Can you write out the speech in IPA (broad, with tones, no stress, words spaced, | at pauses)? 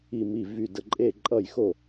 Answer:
i˧˩mi˧˩ vy˧˩də˧˩ǃʼe˥˩ǃʼʌ˥˩j xo˥˩